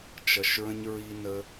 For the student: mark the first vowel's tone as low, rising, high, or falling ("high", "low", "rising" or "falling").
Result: low